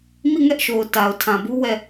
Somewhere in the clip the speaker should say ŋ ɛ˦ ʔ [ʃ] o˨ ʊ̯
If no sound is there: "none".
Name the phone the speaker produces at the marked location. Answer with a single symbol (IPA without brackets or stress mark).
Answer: ʃ